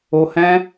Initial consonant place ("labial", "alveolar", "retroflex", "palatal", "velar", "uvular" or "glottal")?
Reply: glottal